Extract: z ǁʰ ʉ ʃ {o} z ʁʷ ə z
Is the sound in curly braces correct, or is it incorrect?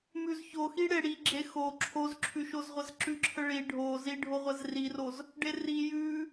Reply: correct